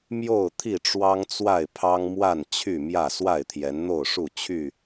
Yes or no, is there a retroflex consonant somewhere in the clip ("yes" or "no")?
yes